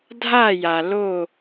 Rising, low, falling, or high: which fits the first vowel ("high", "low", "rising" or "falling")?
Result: falling